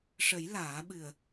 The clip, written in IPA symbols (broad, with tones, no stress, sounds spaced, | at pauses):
ʂ ə˨˩˦ j l aː˨˩˦ ɓ ɨ˨˩ ə̯